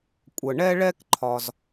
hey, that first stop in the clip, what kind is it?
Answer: ejective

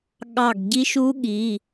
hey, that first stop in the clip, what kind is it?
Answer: implosive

